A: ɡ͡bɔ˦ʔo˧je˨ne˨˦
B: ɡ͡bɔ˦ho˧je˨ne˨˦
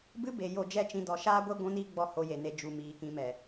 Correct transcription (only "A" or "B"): B